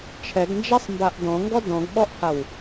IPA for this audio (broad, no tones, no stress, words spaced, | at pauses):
t͡ʃʰɛɡnd͡ʒasˤmbaʔ dɔ̃ŋɡɔ dɔ̃ɡɓɔʔhaw